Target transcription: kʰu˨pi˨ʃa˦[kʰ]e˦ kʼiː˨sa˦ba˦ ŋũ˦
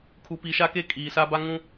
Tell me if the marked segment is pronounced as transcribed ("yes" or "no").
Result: no